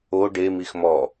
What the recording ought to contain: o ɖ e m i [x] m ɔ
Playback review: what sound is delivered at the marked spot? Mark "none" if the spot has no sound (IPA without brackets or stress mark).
x